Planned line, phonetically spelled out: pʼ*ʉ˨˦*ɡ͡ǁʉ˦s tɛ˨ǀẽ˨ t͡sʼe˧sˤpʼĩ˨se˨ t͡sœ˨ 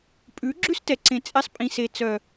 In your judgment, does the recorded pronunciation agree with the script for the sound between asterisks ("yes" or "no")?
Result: yes